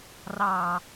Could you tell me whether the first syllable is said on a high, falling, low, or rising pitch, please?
low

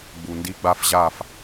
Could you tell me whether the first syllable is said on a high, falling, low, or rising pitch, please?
low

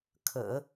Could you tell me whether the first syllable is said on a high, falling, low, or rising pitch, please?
low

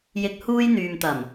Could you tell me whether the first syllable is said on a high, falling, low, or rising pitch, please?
low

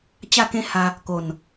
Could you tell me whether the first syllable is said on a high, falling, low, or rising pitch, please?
falling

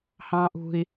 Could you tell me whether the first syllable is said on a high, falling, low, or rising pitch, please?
high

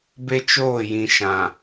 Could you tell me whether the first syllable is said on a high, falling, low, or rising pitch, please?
high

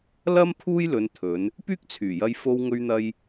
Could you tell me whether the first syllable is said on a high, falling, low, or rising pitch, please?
high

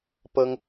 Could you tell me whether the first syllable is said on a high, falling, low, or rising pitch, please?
high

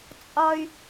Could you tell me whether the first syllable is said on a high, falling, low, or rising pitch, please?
high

